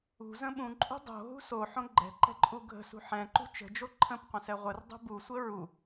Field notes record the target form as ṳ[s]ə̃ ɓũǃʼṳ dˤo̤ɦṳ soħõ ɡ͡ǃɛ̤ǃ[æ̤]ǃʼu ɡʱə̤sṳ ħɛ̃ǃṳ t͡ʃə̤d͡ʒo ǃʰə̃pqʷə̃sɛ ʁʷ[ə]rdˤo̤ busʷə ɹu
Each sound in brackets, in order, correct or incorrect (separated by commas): incorrect, incorrect, correct